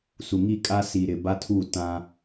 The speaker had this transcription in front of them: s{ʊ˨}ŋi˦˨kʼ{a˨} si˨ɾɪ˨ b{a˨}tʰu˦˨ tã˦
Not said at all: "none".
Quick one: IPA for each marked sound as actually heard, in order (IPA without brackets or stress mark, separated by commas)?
u˨, a˦, a˦